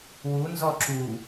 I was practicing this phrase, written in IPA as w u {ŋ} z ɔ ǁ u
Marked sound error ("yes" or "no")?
yes